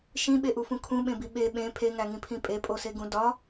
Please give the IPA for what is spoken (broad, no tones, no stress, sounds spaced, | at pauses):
ʃ ĩ ɓ e ʔ u f ũ kʰ ũ ɓ ẽ b i ɓ e ɓ ẽ pʰ e ŋ æ ŋ ĩ pʰ ĩ pʼ e pʼ o s e ɡ ũ d ɒ